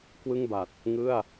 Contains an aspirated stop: no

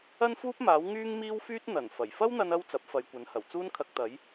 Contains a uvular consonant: no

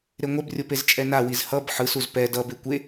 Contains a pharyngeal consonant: yes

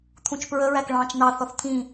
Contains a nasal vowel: yes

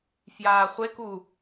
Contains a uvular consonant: yes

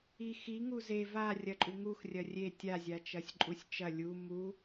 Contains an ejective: yes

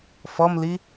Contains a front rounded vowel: no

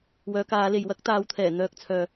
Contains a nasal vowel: no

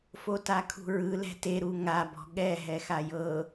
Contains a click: no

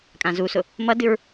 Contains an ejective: yes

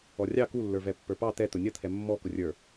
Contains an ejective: no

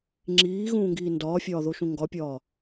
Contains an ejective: no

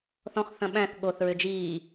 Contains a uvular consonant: yes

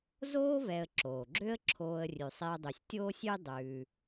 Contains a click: yes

